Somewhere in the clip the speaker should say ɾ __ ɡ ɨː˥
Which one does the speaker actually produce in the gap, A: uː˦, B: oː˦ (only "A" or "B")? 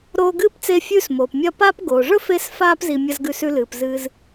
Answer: B